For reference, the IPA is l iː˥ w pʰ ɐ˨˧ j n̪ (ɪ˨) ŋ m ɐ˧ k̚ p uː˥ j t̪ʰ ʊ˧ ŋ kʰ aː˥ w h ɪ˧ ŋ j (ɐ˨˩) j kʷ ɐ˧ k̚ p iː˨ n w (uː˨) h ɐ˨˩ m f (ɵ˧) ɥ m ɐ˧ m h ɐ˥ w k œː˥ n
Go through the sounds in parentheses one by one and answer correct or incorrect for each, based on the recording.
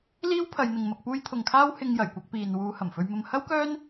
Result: correct, correct, incorrect: uː˨˧, correct

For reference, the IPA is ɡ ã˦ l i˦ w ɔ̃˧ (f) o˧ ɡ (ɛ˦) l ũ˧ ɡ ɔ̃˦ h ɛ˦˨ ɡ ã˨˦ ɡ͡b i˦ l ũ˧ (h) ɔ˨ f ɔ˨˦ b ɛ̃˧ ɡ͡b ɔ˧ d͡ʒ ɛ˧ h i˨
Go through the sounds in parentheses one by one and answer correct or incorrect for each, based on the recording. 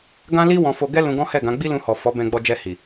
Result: correct, correct, correct

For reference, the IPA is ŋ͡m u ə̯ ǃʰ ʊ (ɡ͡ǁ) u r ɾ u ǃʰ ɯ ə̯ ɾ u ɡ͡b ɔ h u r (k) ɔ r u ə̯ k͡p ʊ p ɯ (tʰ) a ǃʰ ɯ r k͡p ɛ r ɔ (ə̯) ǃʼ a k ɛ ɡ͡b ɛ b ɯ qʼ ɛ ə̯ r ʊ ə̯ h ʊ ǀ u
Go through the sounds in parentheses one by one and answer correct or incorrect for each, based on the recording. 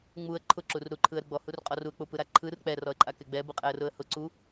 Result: incorrect: ǁ, incorrect: qʼ, incorrect: ɾ, correct

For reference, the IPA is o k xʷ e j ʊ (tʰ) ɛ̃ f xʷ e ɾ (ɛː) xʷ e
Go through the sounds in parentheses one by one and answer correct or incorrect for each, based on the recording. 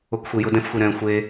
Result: incorrect: d, incorrect: ɛ̃ː

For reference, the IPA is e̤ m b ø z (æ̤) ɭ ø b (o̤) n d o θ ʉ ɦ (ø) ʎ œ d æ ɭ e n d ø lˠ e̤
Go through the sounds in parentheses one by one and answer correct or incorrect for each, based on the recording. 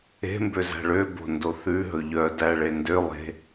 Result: correct, correct, incorrect: ɵ

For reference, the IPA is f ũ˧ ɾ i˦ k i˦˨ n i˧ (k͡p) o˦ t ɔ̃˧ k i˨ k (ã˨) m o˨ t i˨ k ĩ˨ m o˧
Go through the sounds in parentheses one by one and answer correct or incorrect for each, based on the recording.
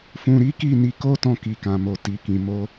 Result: incorrect: k, correct

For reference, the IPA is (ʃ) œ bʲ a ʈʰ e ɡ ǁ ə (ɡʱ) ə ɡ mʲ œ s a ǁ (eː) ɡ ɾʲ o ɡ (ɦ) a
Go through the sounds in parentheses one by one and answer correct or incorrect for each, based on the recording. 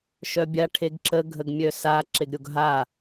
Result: correct, correct, incorrect: e, correct

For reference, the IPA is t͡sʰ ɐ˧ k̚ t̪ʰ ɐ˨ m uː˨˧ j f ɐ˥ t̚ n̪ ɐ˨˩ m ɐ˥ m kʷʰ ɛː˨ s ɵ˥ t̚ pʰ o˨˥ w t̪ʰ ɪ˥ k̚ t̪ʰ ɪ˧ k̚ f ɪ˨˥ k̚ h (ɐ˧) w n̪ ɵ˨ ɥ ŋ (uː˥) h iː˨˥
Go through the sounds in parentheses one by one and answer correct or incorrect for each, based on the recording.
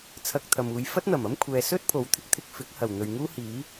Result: incorrect: ɐ˨˩, correct

